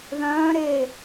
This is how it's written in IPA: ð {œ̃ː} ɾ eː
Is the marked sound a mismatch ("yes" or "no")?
no